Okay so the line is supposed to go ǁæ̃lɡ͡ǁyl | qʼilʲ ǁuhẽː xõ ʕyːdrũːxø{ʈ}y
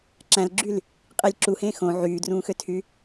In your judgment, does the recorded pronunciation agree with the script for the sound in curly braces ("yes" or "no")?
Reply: no